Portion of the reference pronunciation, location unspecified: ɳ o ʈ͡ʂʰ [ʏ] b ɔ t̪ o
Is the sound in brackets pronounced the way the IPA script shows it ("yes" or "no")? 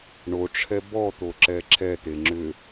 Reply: no